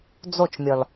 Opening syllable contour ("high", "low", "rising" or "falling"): falling